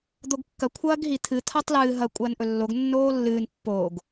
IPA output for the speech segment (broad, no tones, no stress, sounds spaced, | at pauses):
d̪ o ɡ kː ɐ kʷʰ ɐː ɡ ɦ i t̪ʰ ɨ t̪ʰ a tˤ l ɨː ɦ ɐ kʷʼ ɐː n ʔ ɵ lː o ɡ nː oː lː ɨː n pː oː ɡ